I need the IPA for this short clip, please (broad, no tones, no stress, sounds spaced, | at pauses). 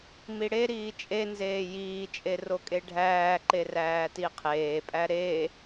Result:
m i ɽ e ɾ iː t͡ʃʼ e n z eː j iː t͡ʃʼ e r o kʼ e ɖʱ æː ǃ e r æː t i qʰ eː pʼ æ ɾ e